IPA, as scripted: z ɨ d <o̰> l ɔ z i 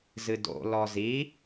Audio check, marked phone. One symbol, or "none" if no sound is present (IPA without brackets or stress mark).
o̰